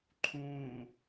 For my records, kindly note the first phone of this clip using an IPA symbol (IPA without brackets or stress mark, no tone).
ǃʰ